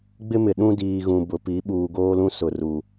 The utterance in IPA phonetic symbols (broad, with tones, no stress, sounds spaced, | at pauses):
ɡ͡b ɪ˦ m ɪ˨ ɗ ũ˦ d iː˨ ɣ ũ˨ b ʊ˨ p i˨˦ ɓ uː˨ ɡ oː˦ l ũ˦ s ʊ˨ r u˨